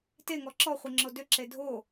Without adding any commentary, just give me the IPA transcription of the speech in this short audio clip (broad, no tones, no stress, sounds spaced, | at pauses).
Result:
t e ŋ ɔ ǁ ɔ χʷ i ŋ͡ǁ o d ʏ ǁ e dʱ o